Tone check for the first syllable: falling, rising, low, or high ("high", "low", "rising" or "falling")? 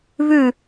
falling